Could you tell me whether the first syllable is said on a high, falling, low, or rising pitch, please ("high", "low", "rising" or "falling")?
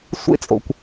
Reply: high